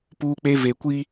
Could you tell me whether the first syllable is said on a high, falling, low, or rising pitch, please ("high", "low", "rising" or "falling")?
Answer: high